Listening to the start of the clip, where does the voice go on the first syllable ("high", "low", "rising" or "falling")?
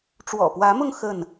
low